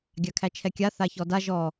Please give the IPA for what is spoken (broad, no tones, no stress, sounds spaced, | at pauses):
ɡʲ a kʰ æ t͡ʃʰ ɛ kʲ a θ a ç ɔ d a ʒ ɔ